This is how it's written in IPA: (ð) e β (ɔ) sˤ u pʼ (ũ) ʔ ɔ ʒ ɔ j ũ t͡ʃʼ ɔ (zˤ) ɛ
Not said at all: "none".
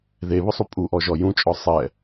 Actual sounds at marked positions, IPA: ð, ʊ, u, sˤ

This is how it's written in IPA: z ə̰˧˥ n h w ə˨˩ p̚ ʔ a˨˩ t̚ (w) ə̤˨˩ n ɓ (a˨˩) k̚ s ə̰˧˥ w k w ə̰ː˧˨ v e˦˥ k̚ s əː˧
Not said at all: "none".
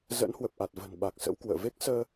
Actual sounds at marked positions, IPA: v, a˨˩

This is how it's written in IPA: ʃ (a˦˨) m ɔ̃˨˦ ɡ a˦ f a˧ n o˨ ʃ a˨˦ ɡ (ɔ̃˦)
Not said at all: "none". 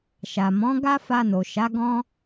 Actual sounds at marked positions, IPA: a˨, ɔ̃˦

